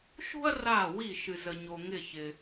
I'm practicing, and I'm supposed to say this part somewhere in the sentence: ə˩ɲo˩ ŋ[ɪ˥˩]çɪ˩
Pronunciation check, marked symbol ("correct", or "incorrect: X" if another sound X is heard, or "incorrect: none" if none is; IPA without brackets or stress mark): incorrect: ɪ˧˩